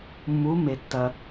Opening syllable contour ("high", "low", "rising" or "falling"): rising